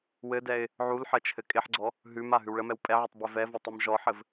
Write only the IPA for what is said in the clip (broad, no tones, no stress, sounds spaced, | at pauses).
w ɘ d ɛ ɪ̯ | ʕ u l ħ ə t͡ʃʰ ɘ kʼ ɪ ħ ɡ͡ǀ ɔ | ɦ ʉ m a ɦ ʉ w ɭ ə m ɛ w pʼ ɛ ʕ e tˤ b ɛ v ɛ v ɤ tˤ ʉ m ʒ ɔ ħ ɘ v